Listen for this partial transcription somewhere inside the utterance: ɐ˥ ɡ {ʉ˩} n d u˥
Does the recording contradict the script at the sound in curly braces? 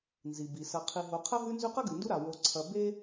yes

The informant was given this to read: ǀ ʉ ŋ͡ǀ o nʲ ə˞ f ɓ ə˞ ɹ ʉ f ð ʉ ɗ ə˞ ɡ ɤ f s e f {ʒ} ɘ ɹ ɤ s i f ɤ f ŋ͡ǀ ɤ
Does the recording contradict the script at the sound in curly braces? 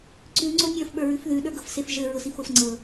no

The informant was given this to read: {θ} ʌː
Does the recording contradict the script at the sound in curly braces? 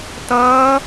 yes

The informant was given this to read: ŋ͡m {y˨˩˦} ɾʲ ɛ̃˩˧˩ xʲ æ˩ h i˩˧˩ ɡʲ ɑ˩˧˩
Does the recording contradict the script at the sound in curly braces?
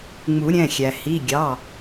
yes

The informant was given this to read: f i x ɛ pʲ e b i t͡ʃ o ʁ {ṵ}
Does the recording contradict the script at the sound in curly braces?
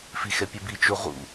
no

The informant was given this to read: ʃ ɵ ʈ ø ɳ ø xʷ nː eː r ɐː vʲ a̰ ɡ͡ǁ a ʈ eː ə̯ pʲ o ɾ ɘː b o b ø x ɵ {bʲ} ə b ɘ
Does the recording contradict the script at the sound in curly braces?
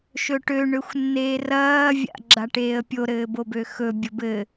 no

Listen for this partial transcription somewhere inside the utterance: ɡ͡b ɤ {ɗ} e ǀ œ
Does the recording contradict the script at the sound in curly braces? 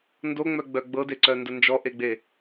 yes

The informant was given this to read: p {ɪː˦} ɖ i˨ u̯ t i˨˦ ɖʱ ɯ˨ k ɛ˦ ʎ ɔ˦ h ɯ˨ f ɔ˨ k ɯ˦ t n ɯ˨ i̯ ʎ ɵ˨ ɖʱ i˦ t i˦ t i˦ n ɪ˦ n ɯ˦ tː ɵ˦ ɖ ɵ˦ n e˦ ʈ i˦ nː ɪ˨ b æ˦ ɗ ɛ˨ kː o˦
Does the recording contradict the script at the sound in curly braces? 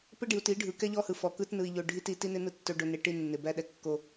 yes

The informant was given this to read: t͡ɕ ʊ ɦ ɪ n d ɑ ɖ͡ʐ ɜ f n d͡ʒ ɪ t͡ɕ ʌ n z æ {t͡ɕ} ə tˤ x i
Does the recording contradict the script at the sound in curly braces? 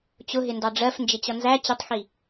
no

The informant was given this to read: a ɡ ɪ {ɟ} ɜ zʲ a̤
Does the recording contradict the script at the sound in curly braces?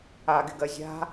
yes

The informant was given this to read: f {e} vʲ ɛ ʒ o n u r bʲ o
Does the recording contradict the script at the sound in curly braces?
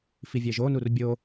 yes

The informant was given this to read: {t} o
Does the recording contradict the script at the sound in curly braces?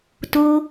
no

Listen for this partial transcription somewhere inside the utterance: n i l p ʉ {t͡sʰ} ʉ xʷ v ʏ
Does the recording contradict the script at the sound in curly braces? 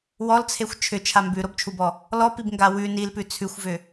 no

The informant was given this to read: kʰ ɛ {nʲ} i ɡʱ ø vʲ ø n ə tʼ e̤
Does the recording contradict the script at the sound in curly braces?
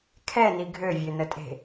yes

